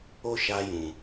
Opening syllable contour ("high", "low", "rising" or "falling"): high